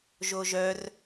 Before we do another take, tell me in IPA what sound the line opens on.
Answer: ʒ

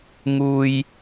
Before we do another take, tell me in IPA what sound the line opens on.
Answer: ŋ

